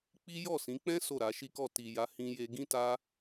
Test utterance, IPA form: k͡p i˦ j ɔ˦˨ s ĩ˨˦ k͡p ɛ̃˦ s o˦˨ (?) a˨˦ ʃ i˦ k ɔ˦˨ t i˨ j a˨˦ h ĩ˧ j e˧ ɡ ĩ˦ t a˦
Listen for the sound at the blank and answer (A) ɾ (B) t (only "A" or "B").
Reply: A